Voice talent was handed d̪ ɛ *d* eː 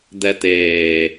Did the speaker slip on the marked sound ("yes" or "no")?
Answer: yes